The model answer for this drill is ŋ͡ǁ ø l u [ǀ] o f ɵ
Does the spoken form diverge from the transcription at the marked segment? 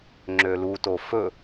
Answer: yes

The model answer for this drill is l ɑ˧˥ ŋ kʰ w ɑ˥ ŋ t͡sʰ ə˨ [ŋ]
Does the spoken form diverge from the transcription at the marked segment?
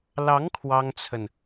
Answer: yes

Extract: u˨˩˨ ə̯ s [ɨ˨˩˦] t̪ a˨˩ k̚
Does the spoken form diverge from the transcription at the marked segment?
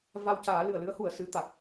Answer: yes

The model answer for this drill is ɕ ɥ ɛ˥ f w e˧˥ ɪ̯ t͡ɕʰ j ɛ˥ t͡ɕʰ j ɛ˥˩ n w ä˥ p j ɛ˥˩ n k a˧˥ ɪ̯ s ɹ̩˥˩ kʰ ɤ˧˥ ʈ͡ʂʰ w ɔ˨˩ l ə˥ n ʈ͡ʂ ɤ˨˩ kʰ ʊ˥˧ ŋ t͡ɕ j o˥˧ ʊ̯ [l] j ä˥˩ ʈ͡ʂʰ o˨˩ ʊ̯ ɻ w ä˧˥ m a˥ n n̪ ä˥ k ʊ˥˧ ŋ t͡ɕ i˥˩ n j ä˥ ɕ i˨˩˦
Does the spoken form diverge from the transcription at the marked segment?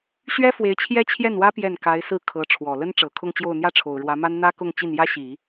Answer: yes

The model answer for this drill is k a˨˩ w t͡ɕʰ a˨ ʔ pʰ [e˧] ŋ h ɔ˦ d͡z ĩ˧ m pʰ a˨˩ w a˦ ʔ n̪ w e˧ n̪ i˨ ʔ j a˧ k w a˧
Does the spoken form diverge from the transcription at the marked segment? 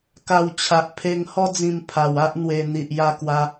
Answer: no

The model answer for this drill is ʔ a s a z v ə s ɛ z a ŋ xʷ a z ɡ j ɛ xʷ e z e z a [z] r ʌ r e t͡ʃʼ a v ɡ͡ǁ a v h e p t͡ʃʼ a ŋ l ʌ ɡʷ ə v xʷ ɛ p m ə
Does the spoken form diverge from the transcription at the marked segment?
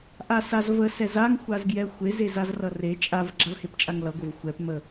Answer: no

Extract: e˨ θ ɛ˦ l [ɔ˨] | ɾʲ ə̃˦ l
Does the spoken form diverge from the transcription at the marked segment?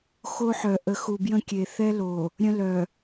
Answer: yes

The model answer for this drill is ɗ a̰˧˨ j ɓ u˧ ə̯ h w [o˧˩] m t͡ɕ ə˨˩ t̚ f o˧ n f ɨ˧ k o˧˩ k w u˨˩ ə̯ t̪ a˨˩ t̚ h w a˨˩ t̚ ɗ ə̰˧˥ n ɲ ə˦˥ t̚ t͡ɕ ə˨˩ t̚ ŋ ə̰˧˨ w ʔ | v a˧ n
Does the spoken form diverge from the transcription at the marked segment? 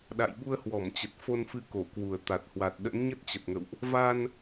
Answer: yes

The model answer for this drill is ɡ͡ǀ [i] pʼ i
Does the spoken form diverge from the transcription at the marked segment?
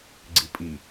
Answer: no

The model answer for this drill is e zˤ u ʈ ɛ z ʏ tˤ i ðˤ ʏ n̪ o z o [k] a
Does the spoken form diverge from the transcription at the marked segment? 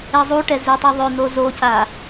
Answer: yes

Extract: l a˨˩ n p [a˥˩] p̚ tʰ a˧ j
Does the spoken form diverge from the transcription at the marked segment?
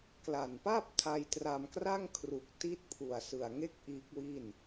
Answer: no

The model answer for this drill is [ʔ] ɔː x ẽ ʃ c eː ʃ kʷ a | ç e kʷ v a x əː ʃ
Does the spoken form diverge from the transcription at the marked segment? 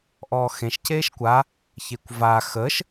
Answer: no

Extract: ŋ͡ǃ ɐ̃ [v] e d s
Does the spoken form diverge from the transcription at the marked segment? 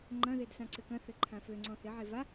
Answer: yes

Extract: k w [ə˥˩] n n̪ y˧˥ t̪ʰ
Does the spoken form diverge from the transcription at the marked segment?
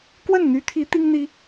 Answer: no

